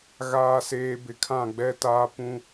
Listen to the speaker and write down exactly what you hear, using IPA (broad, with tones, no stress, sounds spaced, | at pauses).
ɣ aː˨ s eː˨ b ɪ˨ kʰ ã˦˨ ɡ͡b ɛ˦ t aː˦ p ũ˦